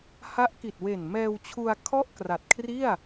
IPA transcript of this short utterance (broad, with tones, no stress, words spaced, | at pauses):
ha˦˥ʔki˨˩t̚ we˨˩n mɛː˧wt͡ɕʰu˧a̯ kʰɔ˥˩ʔkra˨˩t̚kʰri˥˩a̯